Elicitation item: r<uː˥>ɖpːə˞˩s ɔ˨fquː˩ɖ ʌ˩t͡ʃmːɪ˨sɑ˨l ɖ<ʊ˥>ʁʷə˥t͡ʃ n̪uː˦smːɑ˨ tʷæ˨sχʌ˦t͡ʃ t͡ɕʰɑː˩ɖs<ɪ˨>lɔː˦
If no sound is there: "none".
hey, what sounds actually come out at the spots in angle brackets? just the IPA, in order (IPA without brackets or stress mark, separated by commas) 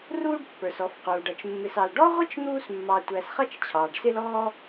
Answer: uː˥, ɔ˥, ɪ˦